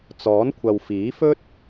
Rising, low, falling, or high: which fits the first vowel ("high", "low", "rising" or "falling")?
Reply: rising